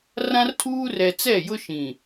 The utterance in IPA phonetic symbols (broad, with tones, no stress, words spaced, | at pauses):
rã˦rtʰuː˦rɛ˨ t͡sɛ˦˨jʊ˦ ʃĩ˨